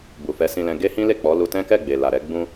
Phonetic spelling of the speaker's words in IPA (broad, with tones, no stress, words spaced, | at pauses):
bu˨fɛ˨˦sĩ˧lɛ̃˧ ɡe˦hĩ˦le˦˨ k͡pɔ˨˦lu˧ tɛ̃˦kɛ˦˨ɡ͡be˨ la˨ɾɛ˨˦ɡ͡bũ˦